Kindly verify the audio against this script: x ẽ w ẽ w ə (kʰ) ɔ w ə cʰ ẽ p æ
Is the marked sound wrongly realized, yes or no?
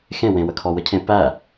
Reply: no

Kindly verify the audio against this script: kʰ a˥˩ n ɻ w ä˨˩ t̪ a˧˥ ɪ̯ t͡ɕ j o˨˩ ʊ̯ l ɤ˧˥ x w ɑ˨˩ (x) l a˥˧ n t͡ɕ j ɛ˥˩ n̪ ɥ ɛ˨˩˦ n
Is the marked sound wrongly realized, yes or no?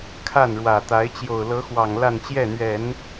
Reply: yes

